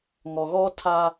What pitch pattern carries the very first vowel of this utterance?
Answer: low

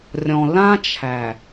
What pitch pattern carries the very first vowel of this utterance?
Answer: low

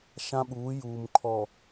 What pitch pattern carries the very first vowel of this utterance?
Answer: high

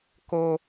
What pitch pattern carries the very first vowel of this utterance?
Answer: high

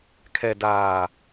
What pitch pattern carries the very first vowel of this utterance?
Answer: low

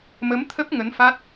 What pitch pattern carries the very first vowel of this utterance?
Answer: rising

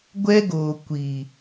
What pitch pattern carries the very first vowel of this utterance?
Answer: high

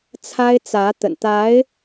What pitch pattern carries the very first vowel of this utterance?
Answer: high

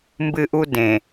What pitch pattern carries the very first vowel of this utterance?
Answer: high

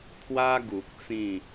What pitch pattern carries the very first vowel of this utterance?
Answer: high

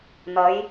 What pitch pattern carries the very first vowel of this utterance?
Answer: rising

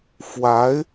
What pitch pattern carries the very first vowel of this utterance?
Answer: rising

